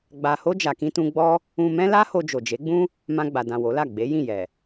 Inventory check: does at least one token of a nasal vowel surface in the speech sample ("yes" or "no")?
yes